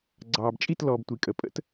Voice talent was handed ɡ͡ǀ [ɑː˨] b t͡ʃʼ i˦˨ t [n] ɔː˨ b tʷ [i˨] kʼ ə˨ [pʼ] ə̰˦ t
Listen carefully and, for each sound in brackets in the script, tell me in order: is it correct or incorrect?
correct, incorrect, correct, correct

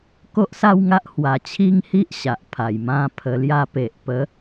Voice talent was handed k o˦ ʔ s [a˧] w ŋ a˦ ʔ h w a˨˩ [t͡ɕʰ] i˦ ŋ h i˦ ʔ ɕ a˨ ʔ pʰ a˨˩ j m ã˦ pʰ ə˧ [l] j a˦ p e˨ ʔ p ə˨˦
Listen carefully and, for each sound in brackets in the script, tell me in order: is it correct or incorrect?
incorrect, correct, correct

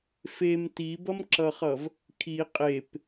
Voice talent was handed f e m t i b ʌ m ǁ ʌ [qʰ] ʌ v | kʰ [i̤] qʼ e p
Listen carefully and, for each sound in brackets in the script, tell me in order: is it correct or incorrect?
incorrect, incorrect

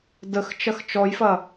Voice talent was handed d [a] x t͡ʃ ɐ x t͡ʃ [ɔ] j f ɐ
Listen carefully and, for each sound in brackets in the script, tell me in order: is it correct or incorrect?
incorrect, correct

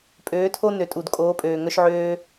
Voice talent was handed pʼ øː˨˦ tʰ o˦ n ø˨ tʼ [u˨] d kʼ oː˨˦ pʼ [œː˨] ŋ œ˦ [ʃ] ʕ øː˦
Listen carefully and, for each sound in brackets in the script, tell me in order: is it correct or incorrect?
correct, incorrect, correct

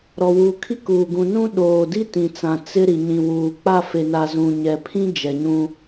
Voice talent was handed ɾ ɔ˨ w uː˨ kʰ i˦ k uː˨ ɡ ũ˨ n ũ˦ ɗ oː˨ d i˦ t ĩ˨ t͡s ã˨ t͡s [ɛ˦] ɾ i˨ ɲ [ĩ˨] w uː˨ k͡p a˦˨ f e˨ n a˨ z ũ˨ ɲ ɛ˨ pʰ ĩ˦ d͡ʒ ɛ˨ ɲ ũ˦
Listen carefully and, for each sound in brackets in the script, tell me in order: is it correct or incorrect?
incorrect, correct

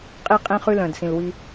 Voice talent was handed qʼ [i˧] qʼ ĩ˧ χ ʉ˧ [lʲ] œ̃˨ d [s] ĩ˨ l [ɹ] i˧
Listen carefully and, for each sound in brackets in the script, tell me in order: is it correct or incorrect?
correct, incorrect, correct, incorrect

